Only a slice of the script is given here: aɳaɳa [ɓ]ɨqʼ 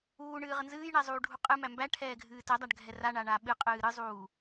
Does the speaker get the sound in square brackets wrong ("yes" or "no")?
no